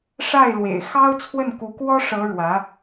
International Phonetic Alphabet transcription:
ʂ a˥˩ ɪ̯ l w ḛ˨˩ ɪ̯ x ɑ˥ ʊ̯ t͡sʰ w ə˥˩ n k u˧˥ k w ɔ˥ ʂ ɤ˧˥ ɻ w ä˧˥

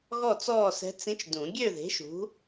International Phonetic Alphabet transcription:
ɣ ɔ˥˨ t͡s ɔː˥˨ s ɛ̤˧˥ t͡s ĩ˧˥ t͡ʃ d ũ˨˩˦ ɡʲ ø˥˨ ð e̤˩˥ ʃ ṳ˩˥

